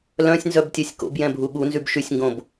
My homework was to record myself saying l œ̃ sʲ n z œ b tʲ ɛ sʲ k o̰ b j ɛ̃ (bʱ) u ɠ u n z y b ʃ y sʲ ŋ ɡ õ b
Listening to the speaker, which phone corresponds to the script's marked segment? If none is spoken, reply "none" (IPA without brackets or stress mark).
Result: bʱ